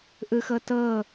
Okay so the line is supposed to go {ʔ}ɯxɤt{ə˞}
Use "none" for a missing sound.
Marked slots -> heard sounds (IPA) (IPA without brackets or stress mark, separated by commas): ʔ, ɤ